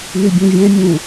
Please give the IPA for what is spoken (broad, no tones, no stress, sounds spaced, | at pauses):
n y bʲ ũ vʲ ɛ̃ mʲ ũ